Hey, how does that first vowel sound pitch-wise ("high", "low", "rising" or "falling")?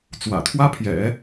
low